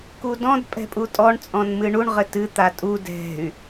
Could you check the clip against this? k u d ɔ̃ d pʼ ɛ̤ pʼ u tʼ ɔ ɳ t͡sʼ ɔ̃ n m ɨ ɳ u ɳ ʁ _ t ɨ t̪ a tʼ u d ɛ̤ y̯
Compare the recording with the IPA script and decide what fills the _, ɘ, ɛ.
ɘ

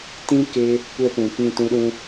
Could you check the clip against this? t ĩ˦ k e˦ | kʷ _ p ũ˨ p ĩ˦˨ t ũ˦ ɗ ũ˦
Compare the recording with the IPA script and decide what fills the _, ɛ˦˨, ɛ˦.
ɛ˦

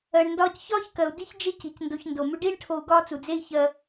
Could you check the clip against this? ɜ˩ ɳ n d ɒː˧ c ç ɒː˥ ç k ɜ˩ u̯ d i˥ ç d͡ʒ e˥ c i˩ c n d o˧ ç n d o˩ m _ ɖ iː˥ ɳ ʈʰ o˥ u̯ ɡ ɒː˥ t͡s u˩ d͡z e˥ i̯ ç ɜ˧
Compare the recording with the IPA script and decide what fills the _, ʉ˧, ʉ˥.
ʉ˧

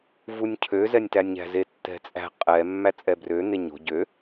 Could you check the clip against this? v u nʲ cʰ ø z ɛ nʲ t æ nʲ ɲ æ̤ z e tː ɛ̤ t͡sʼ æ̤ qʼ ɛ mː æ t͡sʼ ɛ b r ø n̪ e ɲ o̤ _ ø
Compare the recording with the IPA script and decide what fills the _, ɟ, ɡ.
ɟ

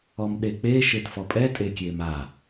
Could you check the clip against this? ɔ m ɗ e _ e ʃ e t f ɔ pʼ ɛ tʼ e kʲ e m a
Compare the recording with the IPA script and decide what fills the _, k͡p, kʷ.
k͡p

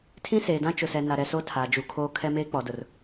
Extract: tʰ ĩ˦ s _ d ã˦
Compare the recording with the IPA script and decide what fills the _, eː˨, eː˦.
eː˨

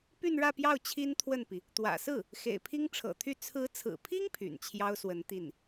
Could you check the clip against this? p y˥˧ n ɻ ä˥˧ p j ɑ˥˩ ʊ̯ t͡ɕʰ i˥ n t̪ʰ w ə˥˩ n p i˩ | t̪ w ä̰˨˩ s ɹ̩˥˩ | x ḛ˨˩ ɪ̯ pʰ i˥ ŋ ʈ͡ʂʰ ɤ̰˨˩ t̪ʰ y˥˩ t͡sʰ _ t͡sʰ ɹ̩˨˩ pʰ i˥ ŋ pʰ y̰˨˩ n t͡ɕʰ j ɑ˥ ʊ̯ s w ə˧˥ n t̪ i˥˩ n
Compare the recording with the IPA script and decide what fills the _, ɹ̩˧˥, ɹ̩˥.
ɹ̩˧˥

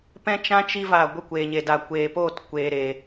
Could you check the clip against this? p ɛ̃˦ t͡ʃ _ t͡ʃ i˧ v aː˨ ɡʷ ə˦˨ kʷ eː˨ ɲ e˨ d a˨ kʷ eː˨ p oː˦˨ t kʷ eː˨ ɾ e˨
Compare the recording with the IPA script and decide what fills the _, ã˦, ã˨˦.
ã˦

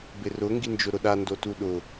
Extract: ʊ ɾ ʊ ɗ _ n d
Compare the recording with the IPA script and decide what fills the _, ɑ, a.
a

